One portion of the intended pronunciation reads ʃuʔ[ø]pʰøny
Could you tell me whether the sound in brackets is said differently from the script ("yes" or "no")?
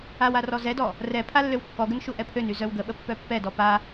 yes